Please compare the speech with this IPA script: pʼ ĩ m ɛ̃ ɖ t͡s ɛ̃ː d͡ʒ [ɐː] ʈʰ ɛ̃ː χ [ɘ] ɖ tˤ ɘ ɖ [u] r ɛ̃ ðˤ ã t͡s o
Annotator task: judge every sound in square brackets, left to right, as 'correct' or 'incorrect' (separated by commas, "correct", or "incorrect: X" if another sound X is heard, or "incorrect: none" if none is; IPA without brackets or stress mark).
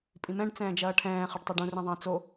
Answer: correct, correct, incorrect: ũ